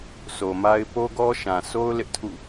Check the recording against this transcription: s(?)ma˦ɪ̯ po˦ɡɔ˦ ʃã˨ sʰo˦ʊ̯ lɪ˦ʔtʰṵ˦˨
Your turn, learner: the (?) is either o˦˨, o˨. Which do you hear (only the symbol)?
o˨